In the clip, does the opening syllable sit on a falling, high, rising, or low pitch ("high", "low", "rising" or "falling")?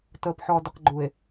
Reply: low